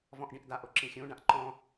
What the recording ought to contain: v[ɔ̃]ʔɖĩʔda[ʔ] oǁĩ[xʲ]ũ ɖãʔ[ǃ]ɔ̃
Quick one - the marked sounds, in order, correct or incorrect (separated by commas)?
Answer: correct, correct, correct, correct